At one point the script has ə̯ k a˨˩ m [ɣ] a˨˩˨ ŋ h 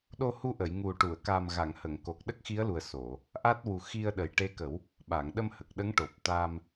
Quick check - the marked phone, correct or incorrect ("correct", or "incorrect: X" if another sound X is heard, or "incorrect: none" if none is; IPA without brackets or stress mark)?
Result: correct